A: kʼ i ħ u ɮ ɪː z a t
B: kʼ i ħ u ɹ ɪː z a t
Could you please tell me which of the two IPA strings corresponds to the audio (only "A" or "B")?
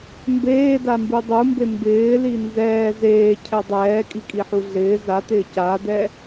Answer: A